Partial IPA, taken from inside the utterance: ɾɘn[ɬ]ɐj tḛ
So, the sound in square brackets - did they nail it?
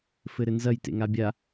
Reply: no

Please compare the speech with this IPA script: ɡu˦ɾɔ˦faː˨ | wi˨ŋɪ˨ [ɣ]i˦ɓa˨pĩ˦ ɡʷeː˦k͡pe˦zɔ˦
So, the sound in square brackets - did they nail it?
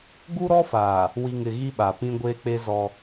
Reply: yes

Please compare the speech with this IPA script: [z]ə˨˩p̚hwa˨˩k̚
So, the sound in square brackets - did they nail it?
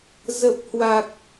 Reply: yes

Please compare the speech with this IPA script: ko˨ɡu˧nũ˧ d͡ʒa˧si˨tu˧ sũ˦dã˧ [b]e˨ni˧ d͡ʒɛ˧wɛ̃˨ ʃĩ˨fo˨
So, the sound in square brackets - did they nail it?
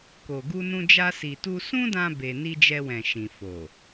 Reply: yes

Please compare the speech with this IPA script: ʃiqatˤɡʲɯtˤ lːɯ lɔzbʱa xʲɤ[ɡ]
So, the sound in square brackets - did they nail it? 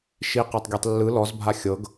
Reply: yes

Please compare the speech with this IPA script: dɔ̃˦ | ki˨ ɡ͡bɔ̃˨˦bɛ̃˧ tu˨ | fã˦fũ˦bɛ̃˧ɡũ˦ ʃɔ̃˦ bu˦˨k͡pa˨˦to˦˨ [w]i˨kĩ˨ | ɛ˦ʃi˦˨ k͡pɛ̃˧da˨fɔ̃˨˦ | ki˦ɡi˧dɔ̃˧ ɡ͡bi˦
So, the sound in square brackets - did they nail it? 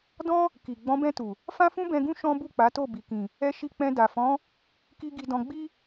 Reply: no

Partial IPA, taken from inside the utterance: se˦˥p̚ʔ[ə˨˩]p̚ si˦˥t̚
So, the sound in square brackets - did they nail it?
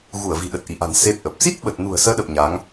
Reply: yes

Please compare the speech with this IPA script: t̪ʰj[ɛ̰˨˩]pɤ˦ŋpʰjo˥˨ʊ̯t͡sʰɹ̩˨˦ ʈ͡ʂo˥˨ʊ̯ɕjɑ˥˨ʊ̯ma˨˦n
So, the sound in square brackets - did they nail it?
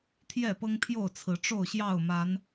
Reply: no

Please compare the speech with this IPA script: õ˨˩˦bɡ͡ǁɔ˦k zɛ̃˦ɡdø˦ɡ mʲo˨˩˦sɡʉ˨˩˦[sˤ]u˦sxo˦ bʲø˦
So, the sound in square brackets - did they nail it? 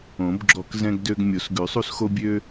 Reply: yes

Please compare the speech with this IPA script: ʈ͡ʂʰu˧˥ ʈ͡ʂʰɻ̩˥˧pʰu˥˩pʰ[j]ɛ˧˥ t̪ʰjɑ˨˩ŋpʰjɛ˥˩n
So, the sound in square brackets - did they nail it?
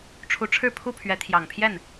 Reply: no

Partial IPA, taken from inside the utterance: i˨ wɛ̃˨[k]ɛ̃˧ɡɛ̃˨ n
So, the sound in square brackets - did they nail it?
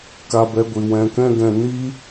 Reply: yes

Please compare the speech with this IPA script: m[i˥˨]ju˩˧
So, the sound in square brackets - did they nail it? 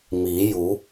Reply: no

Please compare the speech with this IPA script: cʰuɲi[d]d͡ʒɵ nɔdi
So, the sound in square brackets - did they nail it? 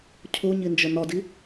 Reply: no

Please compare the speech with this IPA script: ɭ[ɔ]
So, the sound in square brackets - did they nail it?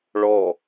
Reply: yes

